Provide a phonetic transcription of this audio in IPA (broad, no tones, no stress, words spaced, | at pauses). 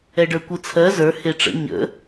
ɛɖə˞kʷɯt͡sʰɜ zə˞ heʈ͡ʂə̰ ɲə̰